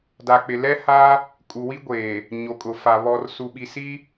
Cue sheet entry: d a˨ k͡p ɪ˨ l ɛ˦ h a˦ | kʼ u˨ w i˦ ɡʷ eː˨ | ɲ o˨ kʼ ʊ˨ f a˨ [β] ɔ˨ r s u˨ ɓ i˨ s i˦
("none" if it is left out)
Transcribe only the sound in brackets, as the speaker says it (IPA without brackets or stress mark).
β